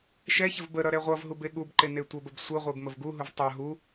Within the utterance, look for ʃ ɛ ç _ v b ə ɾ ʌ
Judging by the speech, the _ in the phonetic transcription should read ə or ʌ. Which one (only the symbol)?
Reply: ə